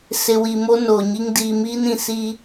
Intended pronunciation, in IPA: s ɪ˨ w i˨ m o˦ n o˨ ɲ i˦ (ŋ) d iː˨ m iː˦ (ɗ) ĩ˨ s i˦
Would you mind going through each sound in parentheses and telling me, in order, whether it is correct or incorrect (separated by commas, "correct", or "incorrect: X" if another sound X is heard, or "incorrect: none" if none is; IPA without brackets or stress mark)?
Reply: correct, incorrect: n